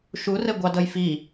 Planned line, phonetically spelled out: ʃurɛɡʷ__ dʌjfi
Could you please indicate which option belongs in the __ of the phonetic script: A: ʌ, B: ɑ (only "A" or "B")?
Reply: B